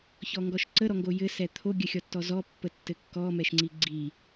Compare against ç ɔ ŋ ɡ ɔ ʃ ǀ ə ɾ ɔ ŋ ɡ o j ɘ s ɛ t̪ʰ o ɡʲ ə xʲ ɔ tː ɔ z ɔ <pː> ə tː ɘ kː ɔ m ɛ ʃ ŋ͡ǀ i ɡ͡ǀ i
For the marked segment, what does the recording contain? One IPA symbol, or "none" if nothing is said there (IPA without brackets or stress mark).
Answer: pː